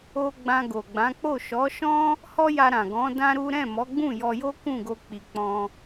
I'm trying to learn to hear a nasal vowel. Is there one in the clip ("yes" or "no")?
yes